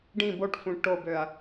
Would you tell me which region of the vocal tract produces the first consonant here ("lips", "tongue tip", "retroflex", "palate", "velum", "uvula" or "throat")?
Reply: retroflex